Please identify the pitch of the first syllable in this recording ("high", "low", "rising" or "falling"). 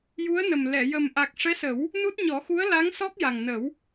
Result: rising